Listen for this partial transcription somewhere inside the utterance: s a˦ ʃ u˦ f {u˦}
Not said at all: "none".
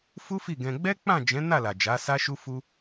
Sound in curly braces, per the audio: u˦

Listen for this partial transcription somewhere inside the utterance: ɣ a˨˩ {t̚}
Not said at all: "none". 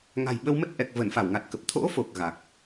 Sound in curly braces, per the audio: k̚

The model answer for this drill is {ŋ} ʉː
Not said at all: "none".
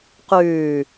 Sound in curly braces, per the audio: q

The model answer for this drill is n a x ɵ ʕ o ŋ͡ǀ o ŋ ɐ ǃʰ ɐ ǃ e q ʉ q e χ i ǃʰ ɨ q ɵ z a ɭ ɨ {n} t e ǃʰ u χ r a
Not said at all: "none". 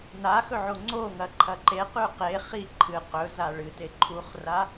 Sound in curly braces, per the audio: none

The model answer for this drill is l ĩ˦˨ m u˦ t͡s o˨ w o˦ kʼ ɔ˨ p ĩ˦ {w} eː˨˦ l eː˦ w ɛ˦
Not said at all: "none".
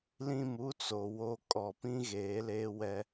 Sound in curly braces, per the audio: ɣ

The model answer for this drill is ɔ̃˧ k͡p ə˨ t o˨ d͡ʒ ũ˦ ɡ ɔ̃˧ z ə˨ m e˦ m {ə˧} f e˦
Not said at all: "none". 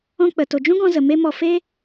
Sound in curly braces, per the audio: ɔ˧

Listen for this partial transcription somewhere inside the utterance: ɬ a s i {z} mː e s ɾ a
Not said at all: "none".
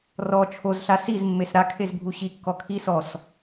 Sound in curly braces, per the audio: z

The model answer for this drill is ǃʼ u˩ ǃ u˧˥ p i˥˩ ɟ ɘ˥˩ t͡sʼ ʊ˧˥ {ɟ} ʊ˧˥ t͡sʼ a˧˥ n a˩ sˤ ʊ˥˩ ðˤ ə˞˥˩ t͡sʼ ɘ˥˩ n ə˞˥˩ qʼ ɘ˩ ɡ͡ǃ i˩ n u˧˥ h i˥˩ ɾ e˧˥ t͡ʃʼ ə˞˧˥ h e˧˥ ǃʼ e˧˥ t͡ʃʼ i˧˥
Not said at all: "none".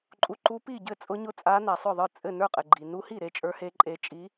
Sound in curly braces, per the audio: ɲ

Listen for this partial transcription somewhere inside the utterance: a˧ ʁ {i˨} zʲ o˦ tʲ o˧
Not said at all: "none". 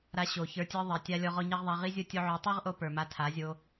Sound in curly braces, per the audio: i˦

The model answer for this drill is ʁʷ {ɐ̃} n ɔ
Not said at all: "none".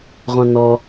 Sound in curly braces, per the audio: ɐ̃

